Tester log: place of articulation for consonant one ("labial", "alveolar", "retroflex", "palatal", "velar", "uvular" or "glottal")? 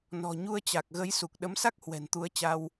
alveolar